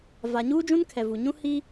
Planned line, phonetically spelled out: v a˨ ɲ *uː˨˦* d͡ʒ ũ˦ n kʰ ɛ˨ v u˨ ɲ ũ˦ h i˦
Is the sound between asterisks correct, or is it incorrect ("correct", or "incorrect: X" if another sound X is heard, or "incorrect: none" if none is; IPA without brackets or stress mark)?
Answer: incorrect: uː˦